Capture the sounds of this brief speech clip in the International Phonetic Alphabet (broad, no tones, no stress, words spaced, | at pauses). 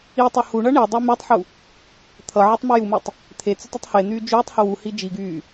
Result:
itˤʌ huɳʌ ɳidˤi mytˤħu | t̪ʰʌ ʕʌtˤmʊjumetˤ | t̪ʰet͡sʊtˤ ʊtˤhen̪yː d͡ʒyːtˤhʊ wuhi d͡ʒiɡyː